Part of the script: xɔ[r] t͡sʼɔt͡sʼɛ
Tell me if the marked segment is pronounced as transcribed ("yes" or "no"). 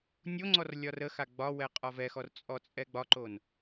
yes